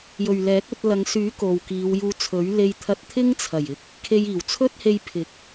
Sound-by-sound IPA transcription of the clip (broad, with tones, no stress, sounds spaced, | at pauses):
j ɵ˨ ɥ l ɛː˨˥ k̚ ɵ˧ t̚ l ɐ˨˧ ŋ s yː˨˥ k o˨ w k iː˨˧ w j uː˧ t͡sʰ ɵ˨˥ ɥ l e˧ j t̪ʰ ɐ˧ t̚ t̪ʰ ɪ˥ ŋ t͡sʰ ɐ˨˩ j ɪ˨ k̚ | kʰ e˧ j iː˨˩ w t͡sʰ ɵ˥ t̚ h e˧ j pʰ ɪ˨˥ k̚